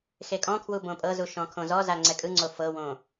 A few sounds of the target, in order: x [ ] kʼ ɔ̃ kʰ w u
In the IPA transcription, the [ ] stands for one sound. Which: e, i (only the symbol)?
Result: e